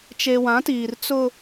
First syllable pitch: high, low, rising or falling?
low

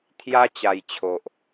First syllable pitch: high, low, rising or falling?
high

